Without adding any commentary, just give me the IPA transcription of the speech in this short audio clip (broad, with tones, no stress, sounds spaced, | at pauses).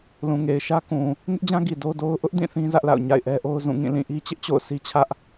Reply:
l ũ˨ ŋ e˨ ɪ̯ ʃ ä˦ k ũ˨ | ŋ ɪ˦ ʔ d͡ʑ ã˦ ɡ i˨ d o˦ d o˦ ʊ̯ ʔ ʊ˦ ʔ d ĩ˦˨ θ ĩ˦ z ä˦ ʔ l a̰˦˨ ʊ̯ ɲ a̰˦˨ ɪ̯ ʔ ɛ˦ ʔ o˦ ʊ̯ z ũ˦˨ ŋ ĩ˦˨ l ĩ˦˨ ʔ i˦ t͡ɕ ɪ˦ ʔ t͡ɕ o̰˦˨ ʊ̯ sʰ i˦ t͡ɕʰ ä˦ ʔ